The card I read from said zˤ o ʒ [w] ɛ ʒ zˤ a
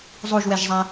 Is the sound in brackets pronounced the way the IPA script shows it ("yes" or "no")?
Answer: yes